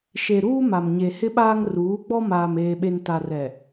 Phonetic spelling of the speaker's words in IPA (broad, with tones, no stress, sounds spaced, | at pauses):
ʃ e˨ ɾ uː˦ m a˨ m ɲ e˨ h ɪ˦ ɓ aː˦ ŋ r uː˨˦ ɡ͡b ɔ˦ m aː˨ m eː˨ ɓ e˨ n t a˨ r ɛ˨